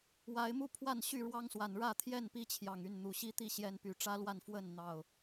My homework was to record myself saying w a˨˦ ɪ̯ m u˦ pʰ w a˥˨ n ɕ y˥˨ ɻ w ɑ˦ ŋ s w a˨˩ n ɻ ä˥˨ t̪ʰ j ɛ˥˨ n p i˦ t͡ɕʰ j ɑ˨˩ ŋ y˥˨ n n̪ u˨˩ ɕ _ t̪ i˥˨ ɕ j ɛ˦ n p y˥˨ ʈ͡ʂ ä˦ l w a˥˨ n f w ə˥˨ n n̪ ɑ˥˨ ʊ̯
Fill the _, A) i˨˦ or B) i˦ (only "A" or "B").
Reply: B